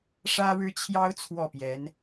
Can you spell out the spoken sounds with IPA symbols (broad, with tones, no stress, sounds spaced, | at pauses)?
ʂ ä˥ ɻ ɻ̩˥ t͡ɕʰ j ɑ˥ ʊ̯ t͡sʰ w ɔ˥˩ p j ɛ˧˥ n